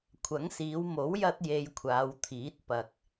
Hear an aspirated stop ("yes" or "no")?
yes